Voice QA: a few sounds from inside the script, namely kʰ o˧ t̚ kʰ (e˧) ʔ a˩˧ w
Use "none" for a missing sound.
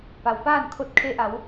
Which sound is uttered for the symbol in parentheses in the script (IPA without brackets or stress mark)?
e˧